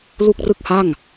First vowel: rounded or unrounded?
rounded